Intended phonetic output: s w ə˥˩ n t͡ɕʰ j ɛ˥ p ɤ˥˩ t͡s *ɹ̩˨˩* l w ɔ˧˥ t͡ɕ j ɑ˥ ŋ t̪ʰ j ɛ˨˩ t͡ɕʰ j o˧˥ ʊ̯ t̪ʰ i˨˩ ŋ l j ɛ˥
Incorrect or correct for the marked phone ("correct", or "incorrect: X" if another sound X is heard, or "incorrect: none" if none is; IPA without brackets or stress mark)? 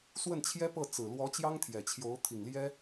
correct